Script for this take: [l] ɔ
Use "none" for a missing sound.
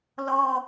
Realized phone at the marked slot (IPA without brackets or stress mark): l